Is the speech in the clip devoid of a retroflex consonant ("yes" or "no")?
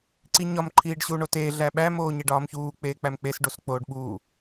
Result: no